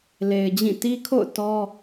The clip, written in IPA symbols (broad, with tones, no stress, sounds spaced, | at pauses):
l e˨ ɪ̯ d͡ʑ ĩ˦˨ t i˦ kʰ o̰˦˨ ʊ̯ t ɔ˦